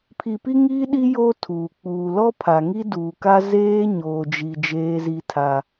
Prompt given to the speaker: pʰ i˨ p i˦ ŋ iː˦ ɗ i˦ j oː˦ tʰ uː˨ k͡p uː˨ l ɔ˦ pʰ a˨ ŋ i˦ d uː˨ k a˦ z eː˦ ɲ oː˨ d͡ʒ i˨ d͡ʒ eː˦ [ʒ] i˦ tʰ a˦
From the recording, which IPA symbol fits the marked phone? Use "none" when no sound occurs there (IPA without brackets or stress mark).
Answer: z